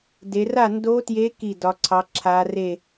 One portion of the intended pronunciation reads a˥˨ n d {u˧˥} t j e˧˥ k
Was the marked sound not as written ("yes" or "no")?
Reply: yes